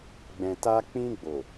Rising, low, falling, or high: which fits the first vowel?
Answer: low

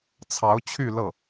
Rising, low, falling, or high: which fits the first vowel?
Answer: rising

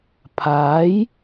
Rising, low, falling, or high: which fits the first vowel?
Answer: rising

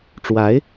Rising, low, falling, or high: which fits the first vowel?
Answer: rising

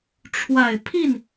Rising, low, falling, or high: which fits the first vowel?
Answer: low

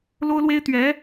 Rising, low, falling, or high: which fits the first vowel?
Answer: high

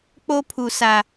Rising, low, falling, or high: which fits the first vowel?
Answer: high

